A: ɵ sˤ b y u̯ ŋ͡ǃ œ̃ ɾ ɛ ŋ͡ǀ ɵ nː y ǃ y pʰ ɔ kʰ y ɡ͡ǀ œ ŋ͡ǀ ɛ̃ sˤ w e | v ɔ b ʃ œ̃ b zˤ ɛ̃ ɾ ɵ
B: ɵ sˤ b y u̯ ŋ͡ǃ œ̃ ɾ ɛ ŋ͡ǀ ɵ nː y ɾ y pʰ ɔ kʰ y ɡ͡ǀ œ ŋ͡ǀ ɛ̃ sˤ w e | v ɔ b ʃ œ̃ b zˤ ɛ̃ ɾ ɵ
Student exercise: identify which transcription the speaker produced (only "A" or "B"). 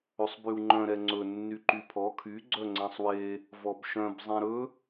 A